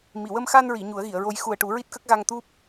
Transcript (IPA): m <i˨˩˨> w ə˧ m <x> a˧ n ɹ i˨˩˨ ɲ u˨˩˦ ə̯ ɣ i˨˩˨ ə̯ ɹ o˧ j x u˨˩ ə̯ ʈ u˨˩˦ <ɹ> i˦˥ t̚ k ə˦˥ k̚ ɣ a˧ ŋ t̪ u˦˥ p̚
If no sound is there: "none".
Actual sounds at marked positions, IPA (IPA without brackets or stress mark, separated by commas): i˨˩˨, x, ɹ